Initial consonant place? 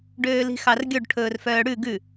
retroflex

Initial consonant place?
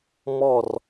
labial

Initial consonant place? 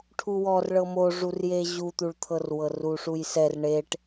retroflex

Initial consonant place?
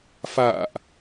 labial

